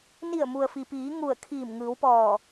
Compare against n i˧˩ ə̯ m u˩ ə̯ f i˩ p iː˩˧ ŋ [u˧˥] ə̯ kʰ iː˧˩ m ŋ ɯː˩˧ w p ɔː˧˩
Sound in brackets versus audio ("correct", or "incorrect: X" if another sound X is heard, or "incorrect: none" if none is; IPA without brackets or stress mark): incorrect: u˧˩